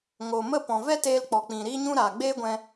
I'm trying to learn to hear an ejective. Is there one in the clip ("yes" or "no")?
no